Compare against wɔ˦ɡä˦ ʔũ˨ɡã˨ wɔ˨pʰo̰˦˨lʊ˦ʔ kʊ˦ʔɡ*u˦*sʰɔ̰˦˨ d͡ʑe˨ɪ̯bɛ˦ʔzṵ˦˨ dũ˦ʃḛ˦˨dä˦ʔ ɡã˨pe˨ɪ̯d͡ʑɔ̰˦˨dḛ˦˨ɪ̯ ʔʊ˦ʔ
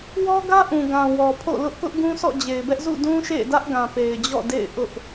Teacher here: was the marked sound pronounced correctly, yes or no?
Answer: no